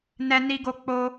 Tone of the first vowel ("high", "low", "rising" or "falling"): high